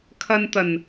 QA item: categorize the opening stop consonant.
aspirated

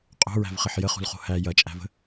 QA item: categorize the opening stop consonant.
ejective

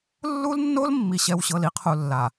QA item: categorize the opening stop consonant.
aspirated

